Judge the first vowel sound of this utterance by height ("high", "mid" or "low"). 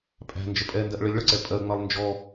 low